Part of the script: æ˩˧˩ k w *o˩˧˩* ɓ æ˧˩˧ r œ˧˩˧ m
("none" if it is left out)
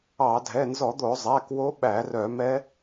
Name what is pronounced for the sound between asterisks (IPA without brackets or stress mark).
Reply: o˧˥